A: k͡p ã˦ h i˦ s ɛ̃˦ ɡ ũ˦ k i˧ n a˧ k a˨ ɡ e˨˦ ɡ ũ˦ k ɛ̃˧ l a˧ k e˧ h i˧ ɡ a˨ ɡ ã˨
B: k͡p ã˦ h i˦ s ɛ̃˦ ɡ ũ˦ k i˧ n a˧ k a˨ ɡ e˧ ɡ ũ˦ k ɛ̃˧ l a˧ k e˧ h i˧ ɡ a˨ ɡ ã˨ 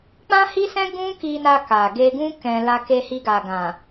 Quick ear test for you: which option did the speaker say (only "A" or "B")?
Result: B